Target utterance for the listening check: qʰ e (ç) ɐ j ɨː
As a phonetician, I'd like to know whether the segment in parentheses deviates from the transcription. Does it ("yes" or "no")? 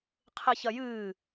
no